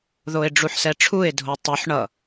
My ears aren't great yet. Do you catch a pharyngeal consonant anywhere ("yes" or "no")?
yes